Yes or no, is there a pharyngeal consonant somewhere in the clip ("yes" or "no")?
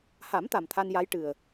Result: no